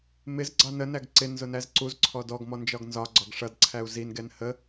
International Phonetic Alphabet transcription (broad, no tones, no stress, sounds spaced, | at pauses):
m ɪ z ɡ͡ǀ ɑ n ə n æ ɡ ǀ ɪ n z ʊ n æ z ǀ u z ǀʰ ɔ d ɔ ɡ m ɔ n d͡ʒ ɒ ɡ n z ɒ ɡ͡ǀ ɒ ɡ ʂ ʌ d ǀʰ æ u̯ z i n ɡ ɛ n h ə